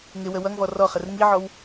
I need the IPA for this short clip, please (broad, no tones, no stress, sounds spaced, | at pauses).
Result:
ŋ ɪ w ə w ʌ ŋ v ɔ r ɔ χ ə r ŋ i ʕ ɔ w